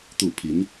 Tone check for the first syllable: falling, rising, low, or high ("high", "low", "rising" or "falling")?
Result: falling